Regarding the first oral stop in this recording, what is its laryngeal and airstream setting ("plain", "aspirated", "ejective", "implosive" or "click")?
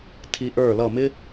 aspirated